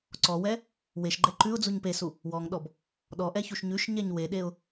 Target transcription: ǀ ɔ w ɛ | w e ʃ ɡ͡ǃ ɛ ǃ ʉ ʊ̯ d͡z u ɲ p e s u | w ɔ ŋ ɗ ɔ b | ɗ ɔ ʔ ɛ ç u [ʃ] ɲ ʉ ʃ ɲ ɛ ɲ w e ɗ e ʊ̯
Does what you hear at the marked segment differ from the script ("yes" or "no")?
no